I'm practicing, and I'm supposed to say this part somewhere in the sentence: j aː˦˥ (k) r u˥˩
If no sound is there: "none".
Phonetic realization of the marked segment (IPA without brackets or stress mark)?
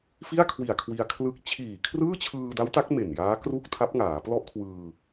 k